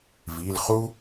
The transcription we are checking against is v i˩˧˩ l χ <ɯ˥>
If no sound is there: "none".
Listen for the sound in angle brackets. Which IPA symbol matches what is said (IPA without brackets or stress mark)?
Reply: u˥